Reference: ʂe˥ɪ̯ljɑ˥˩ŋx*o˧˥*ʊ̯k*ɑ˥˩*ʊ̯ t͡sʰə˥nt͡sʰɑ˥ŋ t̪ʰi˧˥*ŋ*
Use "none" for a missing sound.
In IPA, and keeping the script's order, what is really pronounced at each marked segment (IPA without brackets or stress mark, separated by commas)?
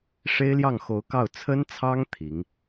o˧˥, ɑ˥˩, ŋ